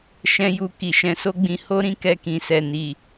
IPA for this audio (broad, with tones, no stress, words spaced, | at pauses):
ʃɛ̃˦ju˧ ki˨ʃɛ̃˧so˦ɡ͡bĩ˧ ho˦ɾĩ˦ kɛ˧kĩ˨sɛ˨ni˨